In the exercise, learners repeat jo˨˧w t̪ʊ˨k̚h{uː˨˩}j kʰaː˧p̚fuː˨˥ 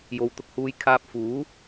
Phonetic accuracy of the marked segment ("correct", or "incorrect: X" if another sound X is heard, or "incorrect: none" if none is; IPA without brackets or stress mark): incorrect: uː˨